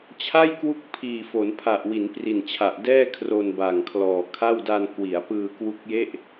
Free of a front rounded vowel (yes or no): yes